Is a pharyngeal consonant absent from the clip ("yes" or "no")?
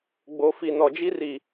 yes